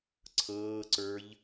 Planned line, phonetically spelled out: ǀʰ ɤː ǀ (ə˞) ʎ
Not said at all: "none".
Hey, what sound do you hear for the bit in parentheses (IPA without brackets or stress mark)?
ə˞